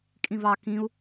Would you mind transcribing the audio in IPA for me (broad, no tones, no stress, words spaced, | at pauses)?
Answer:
kʼĩvɑ kĩu̯